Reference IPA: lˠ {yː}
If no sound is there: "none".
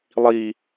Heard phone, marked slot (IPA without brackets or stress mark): iː